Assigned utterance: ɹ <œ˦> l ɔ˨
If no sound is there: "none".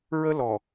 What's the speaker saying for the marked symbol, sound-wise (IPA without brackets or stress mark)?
ə˦